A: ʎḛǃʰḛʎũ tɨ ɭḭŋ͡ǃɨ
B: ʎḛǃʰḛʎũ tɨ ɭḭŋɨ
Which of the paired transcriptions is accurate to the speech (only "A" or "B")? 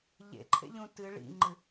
A